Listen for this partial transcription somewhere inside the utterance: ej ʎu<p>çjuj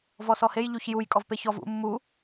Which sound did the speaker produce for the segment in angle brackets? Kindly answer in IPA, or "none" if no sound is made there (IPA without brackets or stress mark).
none